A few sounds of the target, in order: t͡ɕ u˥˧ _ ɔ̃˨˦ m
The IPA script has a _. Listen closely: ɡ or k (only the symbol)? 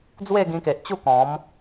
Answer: k